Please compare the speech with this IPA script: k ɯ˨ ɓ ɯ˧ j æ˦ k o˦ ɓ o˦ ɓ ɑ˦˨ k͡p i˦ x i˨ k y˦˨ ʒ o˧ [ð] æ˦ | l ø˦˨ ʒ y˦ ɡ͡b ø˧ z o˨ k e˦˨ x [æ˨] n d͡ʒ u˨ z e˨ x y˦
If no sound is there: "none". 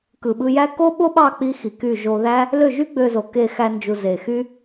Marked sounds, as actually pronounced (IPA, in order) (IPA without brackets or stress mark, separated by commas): ð, æ˧